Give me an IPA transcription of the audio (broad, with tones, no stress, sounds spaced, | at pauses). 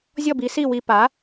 zʲ ɔ˥˩ b i˩˥ s i˥˩ w i˧ p a˩˥